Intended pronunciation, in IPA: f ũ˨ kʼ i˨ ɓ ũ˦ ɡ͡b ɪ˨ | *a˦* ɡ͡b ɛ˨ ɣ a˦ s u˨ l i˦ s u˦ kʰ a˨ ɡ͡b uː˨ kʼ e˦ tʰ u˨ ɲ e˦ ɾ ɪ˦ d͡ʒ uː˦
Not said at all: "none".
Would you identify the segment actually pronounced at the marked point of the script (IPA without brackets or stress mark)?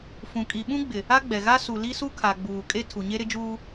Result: a˦